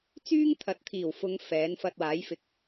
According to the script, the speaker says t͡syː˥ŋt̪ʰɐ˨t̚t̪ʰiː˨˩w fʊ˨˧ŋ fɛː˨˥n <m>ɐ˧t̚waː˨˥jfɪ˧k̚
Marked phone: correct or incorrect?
incorrect: f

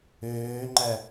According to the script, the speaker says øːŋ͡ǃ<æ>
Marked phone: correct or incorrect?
correct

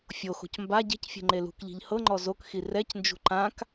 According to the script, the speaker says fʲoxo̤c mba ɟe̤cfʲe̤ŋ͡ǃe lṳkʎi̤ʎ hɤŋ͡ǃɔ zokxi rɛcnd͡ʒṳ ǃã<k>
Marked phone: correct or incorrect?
correct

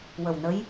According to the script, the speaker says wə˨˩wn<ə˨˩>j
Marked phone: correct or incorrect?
incorrect: ə˧˥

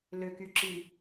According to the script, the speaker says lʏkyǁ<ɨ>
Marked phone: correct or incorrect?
incorrect: i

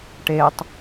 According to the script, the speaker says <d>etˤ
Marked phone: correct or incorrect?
incorrect: ʈ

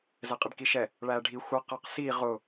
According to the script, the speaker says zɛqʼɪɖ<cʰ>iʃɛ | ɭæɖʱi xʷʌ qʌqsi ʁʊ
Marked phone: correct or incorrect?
incorrect: k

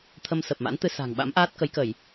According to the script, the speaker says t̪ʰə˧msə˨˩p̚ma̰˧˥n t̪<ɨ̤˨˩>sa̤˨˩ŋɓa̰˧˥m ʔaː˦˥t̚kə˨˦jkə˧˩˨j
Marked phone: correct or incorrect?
incorrect: ɨ˧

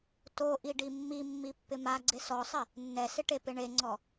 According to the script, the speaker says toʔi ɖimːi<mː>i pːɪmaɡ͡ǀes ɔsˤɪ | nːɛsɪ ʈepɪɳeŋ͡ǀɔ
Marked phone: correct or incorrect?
correct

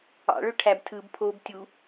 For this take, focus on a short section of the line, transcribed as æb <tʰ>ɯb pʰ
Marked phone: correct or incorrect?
correct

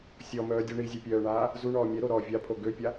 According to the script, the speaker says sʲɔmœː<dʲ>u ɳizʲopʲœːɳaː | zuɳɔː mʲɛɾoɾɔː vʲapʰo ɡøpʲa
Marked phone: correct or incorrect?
correct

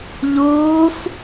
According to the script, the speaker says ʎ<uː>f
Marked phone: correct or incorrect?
correct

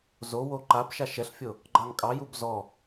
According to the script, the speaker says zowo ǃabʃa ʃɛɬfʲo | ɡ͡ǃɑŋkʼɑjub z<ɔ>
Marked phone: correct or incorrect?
correct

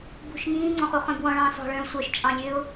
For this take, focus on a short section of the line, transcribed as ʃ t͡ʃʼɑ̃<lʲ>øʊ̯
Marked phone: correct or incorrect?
correct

